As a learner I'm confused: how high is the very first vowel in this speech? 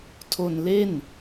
mid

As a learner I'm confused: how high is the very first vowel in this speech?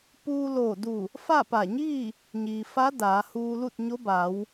high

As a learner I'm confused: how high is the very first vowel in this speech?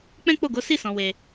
mid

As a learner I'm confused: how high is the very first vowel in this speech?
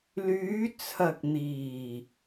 high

